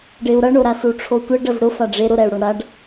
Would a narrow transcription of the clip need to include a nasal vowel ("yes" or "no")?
no